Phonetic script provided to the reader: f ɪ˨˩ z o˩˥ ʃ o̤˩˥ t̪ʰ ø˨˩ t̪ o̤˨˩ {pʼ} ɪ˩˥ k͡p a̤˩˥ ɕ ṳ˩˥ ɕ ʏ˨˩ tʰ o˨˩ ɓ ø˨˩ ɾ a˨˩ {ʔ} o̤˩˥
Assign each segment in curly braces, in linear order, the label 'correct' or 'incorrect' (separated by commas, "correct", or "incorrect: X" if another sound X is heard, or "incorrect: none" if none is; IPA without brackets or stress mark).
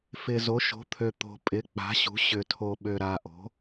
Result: correct, correct